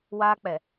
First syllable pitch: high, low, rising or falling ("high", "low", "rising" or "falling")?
high